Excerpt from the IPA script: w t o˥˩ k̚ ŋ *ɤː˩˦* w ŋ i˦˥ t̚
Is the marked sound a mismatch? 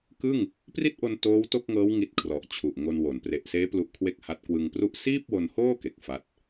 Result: yes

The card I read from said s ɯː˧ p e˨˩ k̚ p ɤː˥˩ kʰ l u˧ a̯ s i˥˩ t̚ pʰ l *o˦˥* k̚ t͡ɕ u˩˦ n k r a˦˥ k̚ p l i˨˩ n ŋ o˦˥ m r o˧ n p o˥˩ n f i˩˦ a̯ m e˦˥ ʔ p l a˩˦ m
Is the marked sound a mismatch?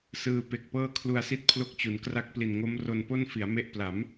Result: no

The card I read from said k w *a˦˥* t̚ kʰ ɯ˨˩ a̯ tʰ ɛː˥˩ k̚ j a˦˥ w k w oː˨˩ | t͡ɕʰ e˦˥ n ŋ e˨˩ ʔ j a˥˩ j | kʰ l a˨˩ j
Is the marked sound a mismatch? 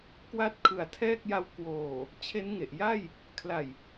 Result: no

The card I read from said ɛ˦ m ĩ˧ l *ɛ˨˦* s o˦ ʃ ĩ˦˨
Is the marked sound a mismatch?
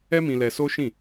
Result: yes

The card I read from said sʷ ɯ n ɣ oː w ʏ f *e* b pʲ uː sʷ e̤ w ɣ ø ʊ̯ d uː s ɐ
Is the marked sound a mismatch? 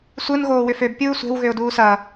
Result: yes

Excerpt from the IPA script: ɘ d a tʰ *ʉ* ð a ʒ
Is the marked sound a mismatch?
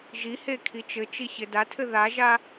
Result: yes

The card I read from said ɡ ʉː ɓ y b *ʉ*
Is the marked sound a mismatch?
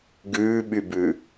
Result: no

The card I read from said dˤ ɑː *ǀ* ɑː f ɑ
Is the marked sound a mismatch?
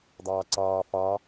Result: no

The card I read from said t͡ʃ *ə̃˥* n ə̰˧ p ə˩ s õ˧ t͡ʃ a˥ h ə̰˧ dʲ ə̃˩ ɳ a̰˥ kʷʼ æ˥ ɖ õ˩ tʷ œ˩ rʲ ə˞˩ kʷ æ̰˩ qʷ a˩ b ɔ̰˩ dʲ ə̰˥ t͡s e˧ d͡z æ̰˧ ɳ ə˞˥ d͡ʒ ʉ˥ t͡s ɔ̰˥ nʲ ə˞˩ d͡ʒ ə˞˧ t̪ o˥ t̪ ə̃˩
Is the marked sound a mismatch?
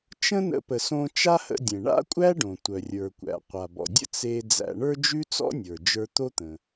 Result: no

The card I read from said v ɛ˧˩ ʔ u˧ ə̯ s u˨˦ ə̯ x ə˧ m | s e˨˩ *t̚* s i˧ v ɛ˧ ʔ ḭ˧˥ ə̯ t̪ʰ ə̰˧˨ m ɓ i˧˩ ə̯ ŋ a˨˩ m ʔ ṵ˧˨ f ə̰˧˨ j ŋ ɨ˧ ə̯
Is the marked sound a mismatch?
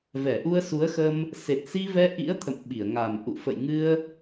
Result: no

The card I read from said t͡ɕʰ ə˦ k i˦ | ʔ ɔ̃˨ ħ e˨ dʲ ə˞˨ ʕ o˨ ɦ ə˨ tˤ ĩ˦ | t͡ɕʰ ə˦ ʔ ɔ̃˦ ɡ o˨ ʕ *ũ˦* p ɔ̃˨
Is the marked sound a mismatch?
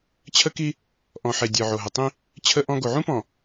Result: no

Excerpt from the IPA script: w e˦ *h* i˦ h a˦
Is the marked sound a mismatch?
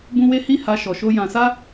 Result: no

